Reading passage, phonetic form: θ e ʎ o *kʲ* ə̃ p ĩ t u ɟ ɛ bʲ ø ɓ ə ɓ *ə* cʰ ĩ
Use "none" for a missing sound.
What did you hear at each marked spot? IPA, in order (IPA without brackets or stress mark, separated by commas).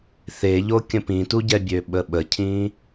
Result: kʲ, ə